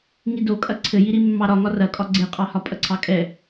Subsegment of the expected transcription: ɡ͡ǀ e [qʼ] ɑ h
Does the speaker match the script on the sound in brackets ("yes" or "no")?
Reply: yes